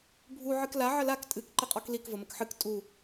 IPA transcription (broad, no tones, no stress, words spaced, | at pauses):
bʱu ʕɨkla ʕəlak tʼɨk ǃɪqʼɔklik vəməkħɨk tʼu